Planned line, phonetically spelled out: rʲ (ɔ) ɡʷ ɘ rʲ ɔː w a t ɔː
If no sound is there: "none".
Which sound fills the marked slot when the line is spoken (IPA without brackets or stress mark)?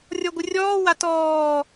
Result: ɔ